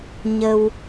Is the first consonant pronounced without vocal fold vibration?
no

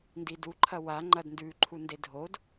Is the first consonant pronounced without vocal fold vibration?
no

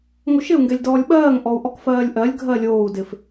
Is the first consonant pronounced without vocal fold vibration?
no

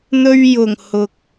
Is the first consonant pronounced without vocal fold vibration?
no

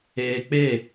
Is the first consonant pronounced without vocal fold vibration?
yes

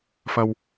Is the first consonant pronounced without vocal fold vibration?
yes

